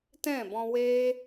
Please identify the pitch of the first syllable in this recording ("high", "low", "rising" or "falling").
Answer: falling